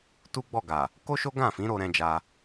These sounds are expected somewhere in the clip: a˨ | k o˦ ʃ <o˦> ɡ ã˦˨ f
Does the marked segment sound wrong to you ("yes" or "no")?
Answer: no